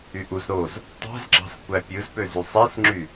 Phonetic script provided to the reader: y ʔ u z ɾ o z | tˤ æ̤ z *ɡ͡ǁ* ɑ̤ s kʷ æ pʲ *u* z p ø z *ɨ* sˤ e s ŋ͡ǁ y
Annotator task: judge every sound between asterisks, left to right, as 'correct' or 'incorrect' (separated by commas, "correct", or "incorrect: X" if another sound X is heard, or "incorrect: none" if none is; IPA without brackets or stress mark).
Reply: correct, incorrect: ɯ, incorrect: y